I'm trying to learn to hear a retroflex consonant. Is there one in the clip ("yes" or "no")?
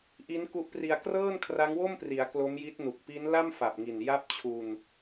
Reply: no